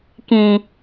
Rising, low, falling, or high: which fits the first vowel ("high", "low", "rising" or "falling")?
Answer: low